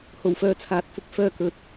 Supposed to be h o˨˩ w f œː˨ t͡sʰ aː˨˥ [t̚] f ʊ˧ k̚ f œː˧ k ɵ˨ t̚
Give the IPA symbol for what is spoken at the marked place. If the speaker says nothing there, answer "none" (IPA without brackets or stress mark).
t̚